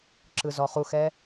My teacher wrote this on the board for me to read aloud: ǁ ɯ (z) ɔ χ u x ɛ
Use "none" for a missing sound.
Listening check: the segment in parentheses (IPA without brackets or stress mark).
z